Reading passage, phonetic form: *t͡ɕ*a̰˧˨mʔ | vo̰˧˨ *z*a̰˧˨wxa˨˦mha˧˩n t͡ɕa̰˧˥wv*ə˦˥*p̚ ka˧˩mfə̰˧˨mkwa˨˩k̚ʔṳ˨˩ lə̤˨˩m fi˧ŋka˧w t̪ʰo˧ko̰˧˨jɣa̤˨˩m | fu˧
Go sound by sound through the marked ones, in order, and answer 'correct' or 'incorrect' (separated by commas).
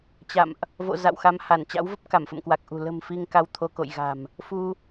correct, correct, correct